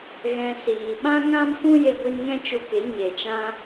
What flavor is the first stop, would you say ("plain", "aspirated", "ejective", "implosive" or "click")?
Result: implosive